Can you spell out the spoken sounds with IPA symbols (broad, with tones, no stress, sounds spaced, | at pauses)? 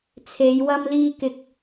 t͡sʰ e˨˧ j w ɐ˧ m l iː˧ k ɪ˧ k̚